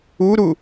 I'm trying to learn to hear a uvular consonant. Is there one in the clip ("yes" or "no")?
no